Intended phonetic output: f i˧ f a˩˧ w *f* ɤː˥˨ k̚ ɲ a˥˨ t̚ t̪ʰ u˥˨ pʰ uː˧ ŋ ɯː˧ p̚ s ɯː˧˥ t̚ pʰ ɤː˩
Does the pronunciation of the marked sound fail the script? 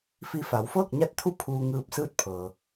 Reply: no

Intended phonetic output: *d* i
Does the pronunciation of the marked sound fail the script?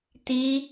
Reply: yes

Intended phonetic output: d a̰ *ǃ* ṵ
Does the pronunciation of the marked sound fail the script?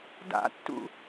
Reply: yes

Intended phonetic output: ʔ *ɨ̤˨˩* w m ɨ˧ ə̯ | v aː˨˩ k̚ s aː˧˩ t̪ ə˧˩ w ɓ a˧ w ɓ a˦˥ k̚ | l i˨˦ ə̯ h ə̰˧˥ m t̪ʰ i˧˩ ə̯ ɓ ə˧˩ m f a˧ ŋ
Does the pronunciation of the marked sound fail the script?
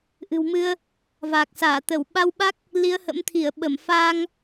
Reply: no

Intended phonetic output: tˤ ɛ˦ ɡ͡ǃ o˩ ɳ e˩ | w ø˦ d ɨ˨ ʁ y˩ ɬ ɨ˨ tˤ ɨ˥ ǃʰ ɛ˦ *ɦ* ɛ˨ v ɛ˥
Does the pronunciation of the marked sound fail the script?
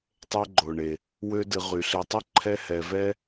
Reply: yes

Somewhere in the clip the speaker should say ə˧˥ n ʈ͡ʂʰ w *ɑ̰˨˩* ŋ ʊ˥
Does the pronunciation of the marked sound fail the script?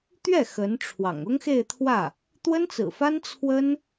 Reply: no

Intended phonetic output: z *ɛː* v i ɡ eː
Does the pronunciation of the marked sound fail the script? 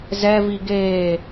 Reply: yes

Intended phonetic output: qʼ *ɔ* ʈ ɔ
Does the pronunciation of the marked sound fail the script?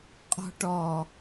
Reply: yes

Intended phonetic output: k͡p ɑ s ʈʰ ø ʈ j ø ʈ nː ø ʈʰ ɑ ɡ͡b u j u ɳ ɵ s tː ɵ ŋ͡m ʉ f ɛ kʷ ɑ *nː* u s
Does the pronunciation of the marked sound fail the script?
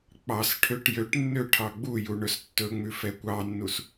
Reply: no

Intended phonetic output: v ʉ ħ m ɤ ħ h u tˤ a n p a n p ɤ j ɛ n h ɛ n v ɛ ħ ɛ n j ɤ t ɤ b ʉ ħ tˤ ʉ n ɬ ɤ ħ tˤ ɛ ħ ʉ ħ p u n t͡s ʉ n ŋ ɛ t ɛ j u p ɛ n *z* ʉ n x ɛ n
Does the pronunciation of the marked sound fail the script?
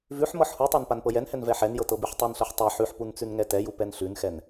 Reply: yes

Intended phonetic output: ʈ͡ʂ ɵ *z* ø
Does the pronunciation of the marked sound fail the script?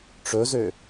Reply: no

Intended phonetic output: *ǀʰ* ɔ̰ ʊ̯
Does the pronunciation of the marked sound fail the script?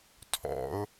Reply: yes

